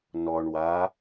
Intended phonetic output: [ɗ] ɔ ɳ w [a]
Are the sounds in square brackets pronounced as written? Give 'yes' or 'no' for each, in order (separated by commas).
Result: no, yes